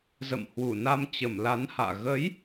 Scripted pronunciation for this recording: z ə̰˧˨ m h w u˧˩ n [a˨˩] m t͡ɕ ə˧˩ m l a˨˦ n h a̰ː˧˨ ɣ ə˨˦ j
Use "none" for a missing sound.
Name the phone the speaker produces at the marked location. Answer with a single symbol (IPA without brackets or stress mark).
a˧